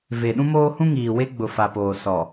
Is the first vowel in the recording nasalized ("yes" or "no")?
no